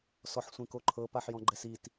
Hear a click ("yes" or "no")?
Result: yes